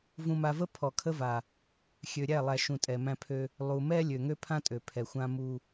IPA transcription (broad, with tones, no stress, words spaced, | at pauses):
vũ˨ma˨və˦ pʰɔ˨kʰə˦va˨ | xʲø˨ɾʲæ˦˨lˠæ˨ ʃũ˨ tʼɛ˨mæ̃˦pʰø˦ | lˠu˨mɛ˦ lʲø˨ŋø˦pʰã˦tʼø˨ pʰɛ˨xʷã˦mu˦